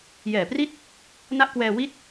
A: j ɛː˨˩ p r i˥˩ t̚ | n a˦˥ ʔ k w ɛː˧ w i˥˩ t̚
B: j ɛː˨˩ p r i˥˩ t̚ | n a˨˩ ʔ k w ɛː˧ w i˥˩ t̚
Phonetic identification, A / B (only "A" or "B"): A